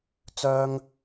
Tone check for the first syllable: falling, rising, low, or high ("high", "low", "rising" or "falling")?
high